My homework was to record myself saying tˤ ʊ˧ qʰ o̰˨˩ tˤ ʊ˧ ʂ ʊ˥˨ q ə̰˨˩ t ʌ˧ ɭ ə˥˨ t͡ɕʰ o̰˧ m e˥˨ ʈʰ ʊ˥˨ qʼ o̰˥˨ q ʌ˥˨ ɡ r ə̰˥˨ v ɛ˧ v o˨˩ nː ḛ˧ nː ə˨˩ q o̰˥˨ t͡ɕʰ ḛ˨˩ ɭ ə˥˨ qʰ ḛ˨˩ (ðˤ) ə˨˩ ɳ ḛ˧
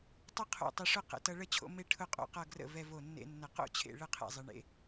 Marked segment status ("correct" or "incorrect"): incorrect